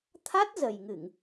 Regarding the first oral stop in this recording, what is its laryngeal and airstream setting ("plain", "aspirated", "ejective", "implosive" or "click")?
aspirated